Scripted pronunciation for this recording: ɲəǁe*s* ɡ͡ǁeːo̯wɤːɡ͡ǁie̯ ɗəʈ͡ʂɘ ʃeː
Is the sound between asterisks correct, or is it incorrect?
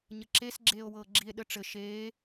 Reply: correct